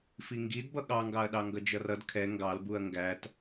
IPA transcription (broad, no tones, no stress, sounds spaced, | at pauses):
f i ŋ ɡ i d b ʌ ɠ ɑ ŋ ɡ ɑ ɐ̯ ɗ ɑ ŋ ɡ ʌ d͡ʒ ʌ r ʌ d kʰ ɛ ŋ ɡ ɑ l b u ɐ̯ ŋ ɡ æ t